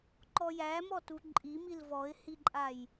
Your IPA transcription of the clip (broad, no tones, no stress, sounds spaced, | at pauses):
ǃ ɔ j æ m ɔ t u ǃʼ i m i l v ɔ ɪ̯ h i ǃʼ a j